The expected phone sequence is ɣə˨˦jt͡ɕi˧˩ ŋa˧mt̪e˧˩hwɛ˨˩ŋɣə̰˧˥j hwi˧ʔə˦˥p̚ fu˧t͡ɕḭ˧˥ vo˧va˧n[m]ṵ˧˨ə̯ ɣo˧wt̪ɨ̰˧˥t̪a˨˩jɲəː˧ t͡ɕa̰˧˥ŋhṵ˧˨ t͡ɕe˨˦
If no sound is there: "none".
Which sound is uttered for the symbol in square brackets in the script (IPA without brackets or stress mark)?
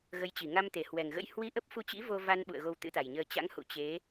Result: ɓ